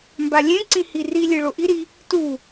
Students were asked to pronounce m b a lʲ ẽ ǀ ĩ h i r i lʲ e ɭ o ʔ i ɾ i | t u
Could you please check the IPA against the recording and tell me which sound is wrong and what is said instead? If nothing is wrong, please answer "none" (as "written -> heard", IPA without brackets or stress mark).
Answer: none